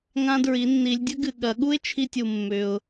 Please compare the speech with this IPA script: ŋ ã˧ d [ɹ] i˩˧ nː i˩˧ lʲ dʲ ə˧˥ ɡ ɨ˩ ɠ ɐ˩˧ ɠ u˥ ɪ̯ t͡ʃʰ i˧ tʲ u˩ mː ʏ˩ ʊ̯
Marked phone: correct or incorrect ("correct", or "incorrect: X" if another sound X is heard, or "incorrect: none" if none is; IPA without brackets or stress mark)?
correct